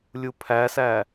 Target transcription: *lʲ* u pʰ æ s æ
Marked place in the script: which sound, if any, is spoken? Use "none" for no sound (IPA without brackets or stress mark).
lʲ